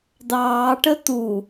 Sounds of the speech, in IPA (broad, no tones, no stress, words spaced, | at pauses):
dɑːʈə tu